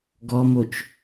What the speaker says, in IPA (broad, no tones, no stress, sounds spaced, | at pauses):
ɡ ɔ m o t͡ʃ